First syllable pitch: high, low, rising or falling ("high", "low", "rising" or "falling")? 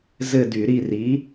falling